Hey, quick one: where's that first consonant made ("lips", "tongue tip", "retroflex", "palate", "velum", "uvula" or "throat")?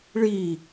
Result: retroflex